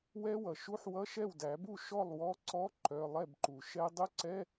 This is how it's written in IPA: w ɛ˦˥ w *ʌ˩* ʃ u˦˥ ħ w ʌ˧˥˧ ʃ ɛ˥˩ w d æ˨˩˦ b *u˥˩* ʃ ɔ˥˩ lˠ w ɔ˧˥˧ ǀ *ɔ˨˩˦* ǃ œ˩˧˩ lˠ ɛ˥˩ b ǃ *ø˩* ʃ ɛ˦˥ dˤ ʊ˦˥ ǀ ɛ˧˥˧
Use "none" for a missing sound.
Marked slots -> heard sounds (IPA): ʌ˩, u˥˩, ɔ˧˥˧, u˩

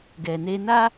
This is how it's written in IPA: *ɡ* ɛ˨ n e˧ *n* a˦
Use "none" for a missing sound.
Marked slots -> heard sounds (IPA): ɡ, n

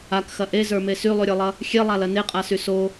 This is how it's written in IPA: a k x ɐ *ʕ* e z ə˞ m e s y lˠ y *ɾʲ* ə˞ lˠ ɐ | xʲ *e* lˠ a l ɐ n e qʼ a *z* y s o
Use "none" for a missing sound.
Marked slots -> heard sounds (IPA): ʔ, ɾʲ, e, s

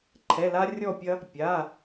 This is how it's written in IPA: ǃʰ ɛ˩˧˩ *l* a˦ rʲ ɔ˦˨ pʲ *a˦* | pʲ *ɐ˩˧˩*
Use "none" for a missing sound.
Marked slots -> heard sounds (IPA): l, ɐ˦, a˩˧˩

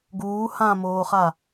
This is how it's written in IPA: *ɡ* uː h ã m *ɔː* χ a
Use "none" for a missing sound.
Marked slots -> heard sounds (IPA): ɡ, oː

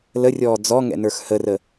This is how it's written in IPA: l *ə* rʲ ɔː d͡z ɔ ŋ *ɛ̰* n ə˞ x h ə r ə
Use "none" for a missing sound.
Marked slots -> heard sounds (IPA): ə, ɛ̰

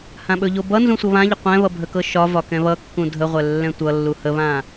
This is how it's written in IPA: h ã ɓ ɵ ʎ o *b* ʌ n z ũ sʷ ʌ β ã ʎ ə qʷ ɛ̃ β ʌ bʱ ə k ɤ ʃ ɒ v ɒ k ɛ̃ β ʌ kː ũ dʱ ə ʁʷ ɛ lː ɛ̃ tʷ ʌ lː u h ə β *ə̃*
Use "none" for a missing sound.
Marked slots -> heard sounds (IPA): b, ã

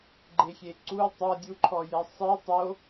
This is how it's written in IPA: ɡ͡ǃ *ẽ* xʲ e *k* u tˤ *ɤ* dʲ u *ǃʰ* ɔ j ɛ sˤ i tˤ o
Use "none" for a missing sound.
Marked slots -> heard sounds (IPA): e, ǀ, ɤ, ǃʰ

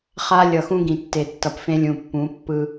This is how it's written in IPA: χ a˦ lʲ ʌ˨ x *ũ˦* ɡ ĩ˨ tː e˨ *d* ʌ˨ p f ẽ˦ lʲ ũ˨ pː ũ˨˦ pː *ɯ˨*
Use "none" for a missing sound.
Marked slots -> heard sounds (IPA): ũ˦, tː, ɯ˦

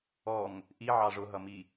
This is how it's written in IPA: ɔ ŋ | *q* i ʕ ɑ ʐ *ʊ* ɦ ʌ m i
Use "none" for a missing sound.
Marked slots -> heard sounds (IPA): ʔ, ʊ

